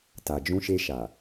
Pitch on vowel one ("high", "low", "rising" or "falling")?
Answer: low